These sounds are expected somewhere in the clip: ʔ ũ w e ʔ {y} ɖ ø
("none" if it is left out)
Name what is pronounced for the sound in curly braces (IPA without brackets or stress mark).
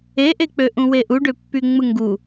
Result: u